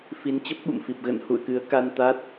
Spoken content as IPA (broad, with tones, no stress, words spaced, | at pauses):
fi˨˦nt͡ɕə˦˥p̚ɓṵ˧˨mfi˨˩p̚ ɣə̰˧˨nhṵ˧˨ə̯kɨ˨˦ə̯ ka˧nt̪a˦˥t̚